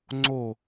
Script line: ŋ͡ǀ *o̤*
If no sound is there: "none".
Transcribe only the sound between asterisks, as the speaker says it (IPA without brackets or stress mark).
o